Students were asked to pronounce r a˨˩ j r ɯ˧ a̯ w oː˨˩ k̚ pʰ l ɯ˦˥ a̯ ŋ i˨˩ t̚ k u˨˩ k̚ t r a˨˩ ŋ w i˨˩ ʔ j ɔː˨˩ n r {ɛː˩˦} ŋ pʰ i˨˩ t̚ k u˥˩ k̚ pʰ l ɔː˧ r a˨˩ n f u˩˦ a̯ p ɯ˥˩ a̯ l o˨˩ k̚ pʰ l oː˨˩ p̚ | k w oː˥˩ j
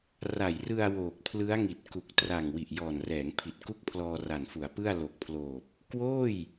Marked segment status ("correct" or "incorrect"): correct